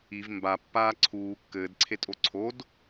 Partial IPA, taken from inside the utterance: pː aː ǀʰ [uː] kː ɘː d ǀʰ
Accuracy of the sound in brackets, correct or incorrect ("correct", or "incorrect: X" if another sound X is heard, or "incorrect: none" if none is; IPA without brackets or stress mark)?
correct